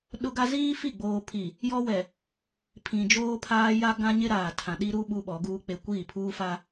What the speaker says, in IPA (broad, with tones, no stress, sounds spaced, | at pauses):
ɗ ʊ˦ ɡ a˦ z iː˦ f i˦˨ ɡ͡b oː˨ pʰ i˨ | j ɔ˦ w ɛ˨ | pʰ ĩ˨ d͡ʒ oː˦ pʰ aː˦ j a˦ ɡ ã˦ ɲ ɪ˦ ɾ aː˨ tʰ ã˨ ɗ i˦ ɾ u˦ ɓ u˦ ɓ ɔ˨˦ ɡ uː˦ k͡p e˦ kʷ iː˦˨ pʰ uː˦ f a˦